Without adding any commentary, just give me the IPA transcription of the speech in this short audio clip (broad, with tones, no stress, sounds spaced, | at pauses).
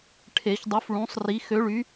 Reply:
ʈʰ e˨˩˦ ç dˤ u˨˥ f ɭ ũ˨˥ sˤ r i˨˥ x ø˨˥ ɭ y˨˥